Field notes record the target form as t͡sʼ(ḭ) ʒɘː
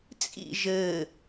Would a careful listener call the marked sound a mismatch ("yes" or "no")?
no